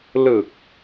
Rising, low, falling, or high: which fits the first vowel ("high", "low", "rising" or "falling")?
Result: low